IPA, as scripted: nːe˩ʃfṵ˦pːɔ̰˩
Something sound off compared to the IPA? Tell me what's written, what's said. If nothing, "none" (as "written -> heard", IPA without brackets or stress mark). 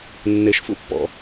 none